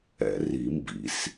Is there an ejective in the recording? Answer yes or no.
no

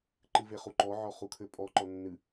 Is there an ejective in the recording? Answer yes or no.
yes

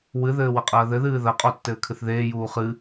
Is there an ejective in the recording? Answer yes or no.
yes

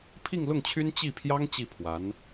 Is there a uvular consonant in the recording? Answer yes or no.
no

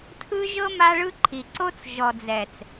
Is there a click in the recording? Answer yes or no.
yes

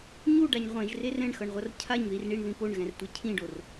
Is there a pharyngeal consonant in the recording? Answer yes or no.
no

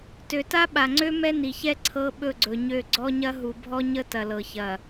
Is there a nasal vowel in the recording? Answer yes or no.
no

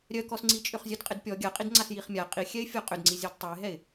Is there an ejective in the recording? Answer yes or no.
yes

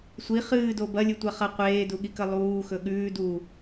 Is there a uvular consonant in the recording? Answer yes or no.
yes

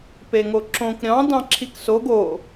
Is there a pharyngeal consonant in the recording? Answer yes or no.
no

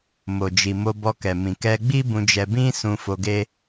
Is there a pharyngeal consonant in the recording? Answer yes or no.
no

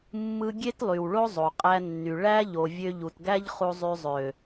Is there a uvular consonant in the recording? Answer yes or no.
yes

